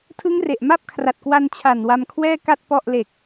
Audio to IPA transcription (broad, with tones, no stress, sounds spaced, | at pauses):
tʰ ɯ˦˥ ŋ r e˨˩ ʔ m a˥˩ p̚ kʰ r a˨˩ t̚ k w a˧ n t͡ɕʰ a˨˩ n w a˧ m kʰ w ɛː˥˩ k a˥˩ t̚ p ɔ˥˩ ʔ l e˨˩ k̚